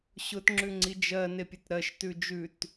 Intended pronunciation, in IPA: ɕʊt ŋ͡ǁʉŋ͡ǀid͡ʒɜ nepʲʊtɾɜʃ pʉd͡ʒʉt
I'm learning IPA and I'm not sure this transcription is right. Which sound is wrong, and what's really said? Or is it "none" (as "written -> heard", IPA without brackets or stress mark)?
p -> t